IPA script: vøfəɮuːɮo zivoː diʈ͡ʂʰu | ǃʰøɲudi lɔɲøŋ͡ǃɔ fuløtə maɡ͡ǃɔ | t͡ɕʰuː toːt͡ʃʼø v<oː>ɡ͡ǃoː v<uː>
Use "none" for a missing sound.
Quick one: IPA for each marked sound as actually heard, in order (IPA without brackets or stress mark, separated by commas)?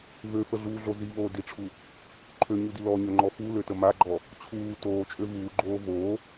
uː, oː